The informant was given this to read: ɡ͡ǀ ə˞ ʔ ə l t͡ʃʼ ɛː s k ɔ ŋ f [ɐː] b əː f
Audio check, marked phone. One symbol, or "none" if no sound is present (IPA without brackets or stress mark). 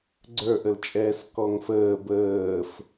əː